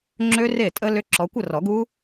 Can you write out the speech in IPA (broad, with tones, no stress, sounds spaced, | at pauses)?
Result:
ŋ͡ǁ ø˦˥ r e˥˩ tʼ ə˦˥ l ʏ˦˥ ǁ ɔ˨˦ kʷ ə˥˧ r ɔ˨˩˦ ɡ u˦˥